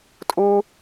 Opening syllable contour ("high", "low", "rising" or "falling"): high